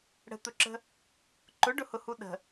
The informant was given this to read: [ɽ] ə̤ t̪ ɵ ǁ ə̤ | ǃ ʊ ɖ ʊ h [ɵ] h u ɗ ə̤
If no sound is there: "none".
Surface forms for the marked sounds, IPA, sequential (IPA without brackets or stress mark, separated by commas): ɽ, ʊ